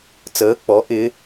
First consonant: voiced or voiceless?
voiceless